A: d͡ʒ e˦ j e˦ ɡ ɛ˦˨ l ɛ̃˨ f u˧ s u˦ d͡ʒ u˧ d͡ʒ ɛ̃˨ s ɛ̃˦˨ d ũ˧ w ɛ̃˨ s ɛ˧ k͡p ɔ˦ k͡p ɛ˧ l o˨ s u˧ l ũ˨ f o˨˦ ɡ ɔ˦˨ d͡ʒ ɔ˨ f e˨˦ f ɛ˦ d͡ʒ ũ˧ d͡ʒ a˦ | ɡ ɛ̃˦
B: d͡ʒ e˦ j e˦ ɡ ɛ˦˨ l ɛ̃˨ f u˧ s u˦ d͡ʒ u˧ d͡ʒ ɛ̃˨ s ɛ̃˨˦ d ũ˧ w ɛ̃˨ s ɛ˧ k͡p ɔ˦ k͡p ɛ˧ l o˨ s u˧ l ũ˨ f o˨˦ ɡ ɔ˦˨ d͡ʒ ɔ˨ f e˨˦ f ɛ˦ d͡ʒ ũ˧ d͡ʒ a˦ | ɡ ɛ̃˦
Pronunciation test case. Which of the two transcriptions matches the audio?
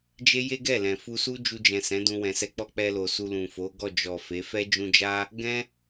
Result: B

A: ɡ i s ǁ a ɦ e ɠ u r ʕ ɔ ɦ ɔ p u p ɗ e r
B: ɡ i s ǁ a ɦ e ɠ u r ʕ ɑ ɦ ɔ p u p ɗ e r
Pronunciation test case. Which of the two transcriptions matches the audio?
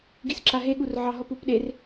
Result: B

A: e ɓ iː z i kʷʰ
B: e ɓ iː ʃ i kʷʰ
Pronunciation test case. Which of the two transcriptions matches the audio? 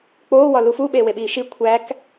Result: B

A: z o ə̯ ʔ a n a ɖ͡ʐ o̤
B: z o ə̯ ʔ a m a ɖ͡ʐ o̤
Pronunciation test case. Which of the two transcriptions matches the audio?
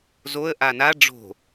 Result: A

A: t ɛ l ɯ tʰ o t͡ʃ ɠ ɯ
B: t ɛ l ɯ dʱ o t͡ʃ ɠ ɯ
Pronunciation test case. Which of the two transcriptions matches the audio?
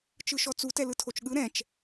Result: A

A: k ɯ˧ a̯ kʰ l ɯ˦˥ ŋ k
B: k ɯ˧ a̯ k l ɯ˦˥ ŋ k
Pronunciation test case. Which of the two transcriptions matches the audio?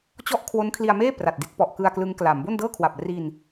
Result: B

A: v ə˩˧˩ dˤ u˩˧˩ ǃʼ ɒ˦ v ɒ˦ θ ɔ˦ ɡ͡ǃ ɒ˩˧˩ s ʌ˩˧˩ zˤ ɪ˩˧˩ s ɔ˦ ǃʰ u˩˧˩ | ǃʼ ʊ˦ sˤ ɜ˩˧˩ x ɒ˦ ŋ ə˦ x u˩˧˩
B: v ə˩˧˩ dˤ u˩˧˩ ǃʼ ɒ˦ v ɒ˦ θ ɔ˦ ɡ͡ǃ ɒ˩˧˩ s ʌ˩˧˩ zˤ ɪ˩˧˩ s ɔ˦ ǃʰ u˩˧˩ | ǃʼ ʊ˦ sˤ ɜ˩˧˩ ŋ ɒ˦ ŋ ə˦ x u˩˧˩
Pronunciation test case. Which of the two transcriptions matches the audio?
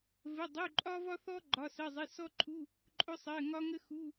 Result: B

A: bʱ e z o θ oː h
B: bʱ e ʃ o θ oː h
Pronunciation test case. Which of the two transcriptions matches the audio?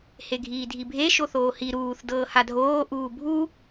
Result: B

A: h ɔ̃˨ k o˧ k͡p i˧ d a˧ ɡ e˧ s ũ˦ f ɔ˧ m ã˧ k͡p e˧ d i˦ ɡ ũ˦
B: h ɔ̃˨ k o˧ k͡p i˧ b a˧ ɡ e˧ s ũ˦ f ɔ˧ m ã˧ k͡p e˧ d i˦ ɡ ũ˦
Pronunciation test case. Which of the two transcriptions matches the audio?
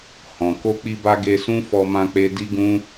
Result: B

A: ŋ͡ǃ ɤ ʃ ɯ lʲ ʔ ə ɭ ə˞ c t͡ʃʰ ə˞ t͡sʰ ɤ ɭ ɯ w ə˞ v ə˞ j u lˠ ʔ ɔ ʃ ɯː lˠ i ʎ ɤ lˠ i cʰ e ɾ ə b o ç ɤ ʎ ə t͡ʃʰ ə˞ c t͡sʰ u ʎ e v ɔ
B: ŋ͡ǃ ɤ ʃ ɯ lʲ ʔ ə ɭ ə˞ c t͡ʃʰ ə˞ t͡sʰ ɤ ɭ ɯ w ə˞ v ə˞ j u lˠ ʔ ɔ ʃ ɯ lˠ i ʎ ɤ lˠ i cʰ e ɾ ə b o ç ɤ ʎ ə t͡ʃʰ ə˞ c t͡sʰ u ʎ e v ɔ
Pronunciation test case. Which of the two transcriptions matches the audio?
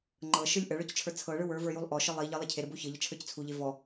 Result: B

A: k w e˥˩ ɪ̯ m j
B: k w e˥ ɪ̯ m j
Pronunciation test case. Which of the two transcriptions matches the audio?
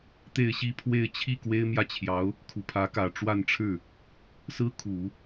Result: B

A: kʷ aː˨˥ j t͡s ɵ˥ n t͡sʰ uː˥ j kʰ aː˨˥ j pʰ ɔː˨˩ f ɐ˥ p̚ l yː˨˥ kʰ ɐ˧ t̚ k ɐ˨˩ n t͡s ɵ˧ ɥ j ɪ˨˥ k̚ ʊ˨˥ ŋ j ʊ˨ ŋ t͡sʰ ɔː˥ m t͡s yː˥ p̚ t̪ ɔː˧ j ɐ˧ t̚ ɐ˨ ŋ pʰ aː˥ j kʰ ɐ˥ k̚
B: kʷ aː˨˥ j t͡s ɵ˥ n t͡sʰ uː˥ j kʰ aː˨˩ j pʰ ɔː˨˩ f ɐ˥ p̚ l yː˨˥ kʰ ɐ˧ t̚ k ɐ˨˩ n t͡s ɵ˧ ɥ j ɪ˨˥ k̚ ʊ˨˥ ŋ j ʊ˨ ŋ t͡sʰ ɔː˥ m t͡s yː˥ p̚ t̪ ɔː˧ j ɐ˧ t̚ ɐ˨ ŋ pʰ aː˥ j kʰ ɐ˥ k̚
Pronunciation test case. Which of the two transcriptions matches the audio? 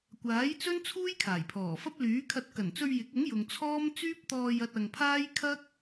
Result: B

